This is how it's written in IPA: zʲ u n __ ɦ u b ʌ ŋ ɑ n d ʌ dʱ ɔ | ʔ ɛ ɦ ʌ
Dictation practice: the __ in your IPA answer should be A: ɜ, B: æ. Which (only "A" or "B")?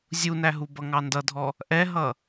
B